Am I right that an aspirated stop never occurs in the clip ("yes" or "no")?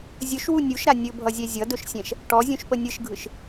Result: yes